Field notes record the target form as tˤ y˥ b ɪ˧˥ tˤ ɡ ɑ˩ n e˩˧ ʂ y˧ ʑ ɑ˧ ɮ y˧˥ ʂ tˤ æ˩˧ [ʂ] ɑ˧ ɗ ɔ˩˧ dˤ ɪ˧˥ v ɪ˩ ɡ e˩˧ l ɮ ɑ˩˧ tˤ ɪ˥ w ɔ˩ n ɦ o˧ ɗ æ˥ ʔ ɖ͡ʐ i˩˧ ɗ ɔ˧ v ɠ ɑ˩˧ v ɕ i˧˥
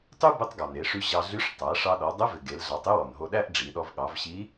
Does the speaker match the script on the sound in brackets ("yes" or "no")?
yes